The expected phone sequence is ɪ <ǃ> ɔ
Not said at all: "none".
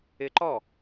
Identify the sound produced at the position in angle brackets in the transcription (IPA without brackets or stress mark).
ǃ